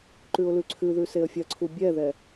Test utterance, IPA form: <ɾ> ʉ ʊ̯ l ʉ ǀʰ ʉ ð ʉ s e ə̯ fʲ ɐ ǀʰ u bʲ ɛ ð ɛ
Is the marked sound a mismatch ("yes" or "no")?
yes